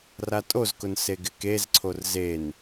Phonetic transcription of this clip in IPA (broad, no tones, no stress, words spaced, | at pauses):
ratʼozkʊn seɡɪkezǀʰor zen